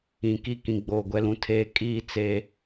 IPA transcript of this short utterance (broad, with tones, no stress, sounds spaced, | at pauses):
ĩ˨ k i˦ k ĩ˨ ɡ͡b oː˨ ɡʷ ɛ˦ l ũ˦ tʰ eː˦ kʼ iː˦ t͡s e˦